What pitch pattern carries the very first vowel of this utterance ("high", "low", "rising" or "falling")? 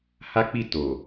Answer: high